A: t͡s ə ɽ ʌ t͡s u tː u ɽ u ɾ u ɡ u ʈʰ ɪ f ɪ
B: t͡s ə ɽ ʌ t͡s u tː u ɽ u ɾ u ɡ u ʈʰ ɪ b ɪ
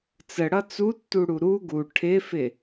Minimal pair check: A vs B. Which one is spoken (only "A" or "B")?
A